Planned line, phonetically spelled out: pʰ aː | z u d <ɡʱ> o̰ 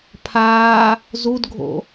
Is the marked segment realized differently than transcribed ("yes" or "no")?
no